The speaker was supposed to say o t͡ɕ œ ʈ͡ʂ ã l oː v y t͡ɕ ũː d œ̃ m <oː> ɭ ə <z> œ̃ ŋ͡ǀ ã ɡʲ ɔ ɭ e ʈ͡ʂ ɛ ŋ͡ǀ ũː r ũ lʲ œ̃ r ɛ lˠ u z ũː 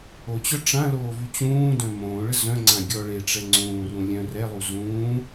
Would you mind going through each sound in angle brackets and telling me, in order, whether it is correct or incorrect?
incorrect: õː, correct

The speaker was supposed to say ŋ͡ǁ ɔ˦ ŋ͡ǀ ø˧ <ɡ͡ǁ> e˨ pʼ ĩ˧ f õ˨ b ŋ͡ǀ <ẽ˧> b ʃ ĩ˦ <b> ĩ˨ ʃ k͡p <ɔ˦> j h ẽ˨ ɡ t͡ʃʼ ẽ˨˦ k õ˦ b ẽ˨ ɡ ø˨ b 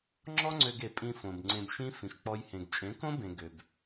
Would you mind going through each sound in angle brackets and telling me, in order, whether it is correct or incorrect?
incorrect: ɡ, correct, incorrect: f, incorrect: ɔ˧

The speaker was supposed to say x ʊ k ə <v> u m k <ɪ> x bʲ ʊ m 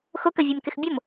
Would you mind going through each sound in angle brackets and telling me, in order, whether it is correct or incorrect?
incorrect: vʲ, correct

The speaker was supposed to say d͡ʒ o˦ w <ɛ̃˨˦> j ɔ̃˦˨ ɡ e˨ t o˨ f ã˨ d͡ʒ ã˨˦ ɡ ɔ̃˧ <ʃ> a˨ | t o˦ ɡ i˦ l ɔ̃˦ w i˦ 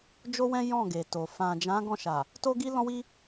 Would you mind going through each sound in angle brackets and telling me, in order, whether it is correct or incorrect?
incorrect: ɛ̃˦, correct

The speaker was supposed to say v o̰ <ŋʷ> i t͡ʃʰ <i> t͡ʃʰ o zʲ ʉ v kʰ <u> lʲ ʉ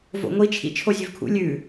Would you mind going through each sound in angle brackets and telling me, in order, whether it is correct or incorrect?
correct, incorrect: ḭ, incorrect: ṵ

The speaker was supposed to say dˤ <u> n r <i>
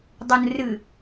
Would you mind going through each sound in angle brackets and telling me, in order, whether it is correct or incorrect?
correct, incorrect: ɨ

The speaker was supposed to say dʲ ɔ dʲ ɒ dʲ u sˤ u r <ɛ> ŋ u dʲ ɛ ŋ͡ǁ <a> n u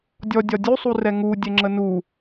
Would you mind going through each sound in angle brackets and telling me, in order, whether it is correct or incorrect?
correct, incorrect: ə

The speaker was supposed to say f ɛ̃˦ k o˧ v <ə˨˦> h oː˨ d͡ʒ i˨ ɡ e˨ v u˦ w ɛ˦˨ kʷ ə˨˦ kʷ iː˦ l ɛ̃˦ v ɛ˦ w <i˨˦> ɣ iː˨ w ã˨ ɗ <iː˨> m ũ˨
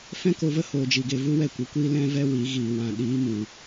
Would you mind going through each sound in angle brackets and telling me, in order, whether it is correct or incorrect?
incorrect: ə˦, correct, incorrect: iː˨˦

